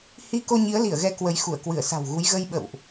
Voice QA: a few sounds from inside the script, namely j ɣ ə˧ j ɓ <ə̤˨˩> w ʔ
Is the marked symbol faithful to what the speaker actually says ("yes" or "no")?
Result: no